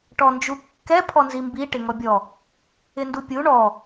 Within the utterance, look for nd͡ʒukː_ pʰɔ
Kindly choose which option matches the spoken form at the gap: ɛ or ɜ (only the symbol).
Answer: ɛ